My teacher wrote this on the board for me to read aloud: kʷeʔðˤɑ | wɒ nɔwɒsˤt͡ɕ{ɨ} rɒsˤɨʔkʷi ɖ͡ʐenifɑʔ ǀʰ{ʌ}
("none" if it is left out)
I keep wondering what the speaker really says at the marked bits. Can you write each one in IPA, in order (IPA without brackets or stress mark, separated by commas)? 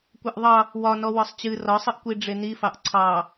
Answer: ɨ, ɑ